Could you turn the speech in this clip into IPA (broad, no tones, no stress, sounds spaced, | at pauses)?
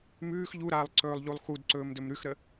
m ʉː x ʎ u ɾ aː lˠ ǀ ɵː lˠ ʎ u lˠ x u d ǀ ɵː m d ɵ m ɾ ʉ x ɾ ə